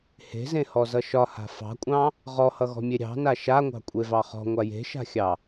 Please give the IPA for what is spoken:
h e̤ z ẽ h ɔ z ʌ ʃ ɒ h a̤ f ɑ̤ kʷʼ ɑ̃ | ʁ ɔ h ʌ ɣ ɔ̤ mʲ e ɾʲ ɑ̤ n a ʃ a ŋʷ ɑ̤ kʷʼ e v ɑ χ ɔ̤ ŋʷ a j e̤ ʃ a̤ xʲ ɑ

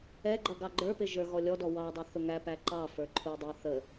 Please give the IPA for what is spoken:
ɛ ɡ͡ǃ ʌ ɡ ɑ ɡ͡ǃ ə˞ p ɪ ʒ ə˞ ɣ ɔ lʲ ɔ d ɔ w ɑ dˤ ʊ θ ʊ ŋ æ p æ ǃ ɑ f ə˞ ǃʰ u dˤ ɛ θ ə

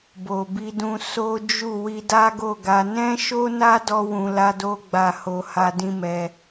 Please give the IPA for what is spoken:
b o˨ b i˧ d ũ˧ s o˦ d͡ʒ u˦˨ w i˧ d a˦ ɡ o˦˨ ɡ a˧ n ɛ̃˦ ʃ o˦ n a˦ d ɔ˧ w ũ˧ l a˦ d o˦ ɡ͡b a˦˨ h o˧ h a˧ d ĩ˦ m ɛ˧

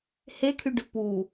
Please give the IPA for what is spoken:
h e kʰ y ɖ ʉ p u

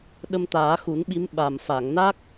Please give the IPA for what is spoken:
ɗ ə˧ m t̪ aː˨˩˦ x u˨˩˦ n ɓ i˧˥ m ɓ a˨˩ m f a˨˩˨ ŋ n a˦˥ k̚

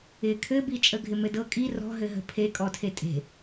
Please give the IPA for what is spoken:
ɪ kʰ ɘ b i t͡ʃʼ ə ɡʱ ɪ m ɘ d ɤ kʼ i r ɔ̤ ɦ ɘ ɦ ə̤ pʰ e kʼ ɔ tʰ e tʼ e̤

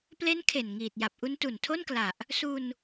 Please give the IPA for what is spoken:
p l e˦˥ n kʰ e˨˩ n ŋ iː˨˩ t̚ j a˨˩ p̚ ʔ u˦˥ n t u˨˩ n tʰ o˥˩ n k l a˨˩ ʔ | s u˧ n

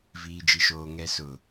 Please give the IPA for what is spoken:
v iː˨ d͡ʒ i˨ ʃ oː˨ ŋ ɛ˨ s ʊ˨

